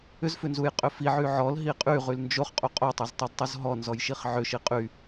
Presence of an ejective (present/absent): present